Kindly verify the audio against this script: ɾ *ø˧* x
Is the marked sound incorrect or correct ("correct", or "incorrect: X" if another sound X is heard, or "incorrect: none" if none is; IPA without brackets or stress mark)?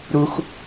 incorrect: u˧